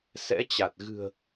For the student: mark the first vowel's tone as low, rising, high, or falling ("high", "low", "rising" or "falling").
rising